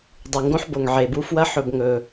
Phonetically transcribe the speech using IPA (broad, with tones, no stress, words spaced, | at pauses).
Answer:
dˤɨ˩ ŋɡõ˥ħbo˩ŋʕe˩bu˥ fwɐ˥ ħɵ˨b ŋɵ˩